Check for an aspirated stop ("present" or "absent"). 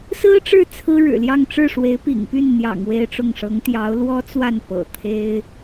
present